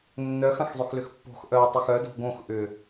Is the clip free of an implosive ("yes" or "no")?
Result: yes